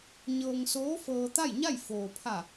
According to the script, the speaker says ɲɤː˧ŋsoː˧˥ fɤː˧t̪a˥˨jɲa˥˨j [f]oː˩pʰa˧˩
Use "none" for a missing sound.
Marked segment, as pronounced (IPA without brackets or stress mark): f